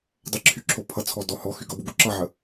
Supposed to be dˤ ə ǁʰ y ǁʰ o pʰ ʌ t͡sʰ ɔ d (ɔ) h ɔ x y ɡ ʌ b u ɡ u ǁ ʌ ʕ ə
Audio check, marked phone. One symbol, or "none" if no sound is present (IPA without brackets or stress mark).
ɔ